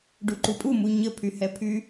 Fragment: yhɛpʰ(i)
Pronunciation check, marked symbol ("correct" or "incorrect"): incorrect